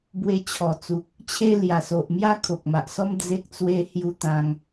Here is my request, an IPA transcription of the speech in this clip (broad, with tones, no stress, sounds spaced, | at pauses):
b w e˧ t͡ɕʰ ɔ˨˩ t͡s u˨ k̚ | t͡ɕʰ e˦ l j a˨˩ s o˨ ʔ m j a˦ kʰ o˨ k̚ m a˨ ʔ s ɔ˦ m d͡z e˦ k̚ t͡s w e˦ h j u˦ t̪ ã˧ ŋ